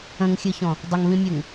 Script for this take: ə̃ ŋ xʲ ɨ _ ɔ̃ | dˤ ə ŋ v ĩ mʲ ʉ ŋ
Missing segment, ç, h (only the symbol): ç